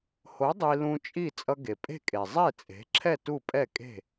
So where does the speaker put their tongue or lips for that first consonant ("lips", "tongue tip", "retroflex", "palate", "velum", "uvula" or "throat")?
throat